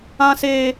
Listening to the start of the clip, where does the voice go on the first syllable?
high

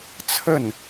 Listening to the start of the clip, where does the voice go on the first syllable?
falling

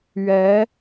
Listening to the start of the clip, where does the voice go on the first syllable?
rising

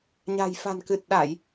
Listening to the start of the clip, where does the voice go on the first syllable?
low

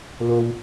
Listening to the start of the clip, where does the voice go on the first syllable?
low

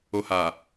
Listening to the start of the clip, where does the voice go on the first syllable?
low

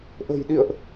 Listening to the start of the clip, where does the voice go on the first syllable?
low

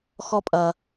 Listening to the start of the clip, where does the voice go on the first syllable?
high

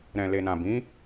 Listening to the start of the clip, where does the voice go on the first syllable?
low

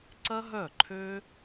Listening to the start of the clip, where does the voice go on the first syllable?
high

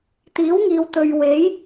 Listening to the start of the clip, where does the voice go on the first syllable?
rising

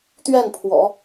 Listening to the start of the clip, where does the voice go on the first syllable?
falling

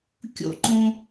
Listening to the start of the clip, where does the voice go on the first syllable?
falling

